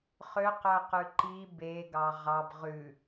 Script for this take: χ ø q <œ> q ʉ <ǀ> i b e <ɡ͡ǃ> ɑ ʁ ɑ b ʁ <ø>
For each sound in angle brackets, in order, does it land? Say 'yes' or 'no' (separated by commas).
yes, no, no, no